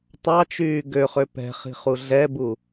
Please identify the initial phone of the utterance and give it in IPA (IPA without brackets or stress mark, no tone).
tˤ